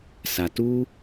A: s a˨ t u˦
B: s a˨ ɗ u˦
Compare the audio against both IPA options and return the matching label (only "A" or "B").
A